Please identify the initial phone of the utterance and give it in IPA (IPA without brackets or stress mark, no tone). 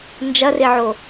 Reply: n